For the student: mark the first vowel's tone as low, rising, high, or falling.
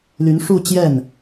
rising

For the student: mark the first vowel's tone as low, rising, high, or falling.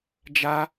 high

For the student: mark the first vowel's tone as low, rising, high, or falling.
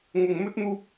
low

